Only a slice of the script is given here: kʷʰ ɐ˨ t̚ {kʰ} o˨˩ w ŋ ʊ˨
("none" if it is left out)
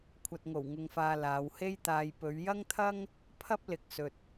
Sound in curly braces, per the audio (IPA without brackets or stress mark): ŋ